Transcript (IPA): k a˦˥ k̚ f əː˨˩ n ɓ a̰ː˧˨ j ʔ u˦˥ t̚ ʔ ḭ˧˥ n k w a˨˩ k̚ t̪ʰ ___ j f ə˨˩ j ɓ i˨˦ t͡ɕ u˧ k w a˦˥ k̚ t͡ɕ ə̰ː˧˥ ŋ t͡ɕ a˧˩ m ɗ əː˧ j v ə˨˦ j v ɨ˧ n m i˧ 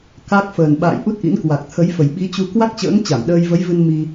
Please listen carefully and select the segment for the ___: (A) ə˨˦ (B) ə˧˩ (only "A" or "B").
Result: A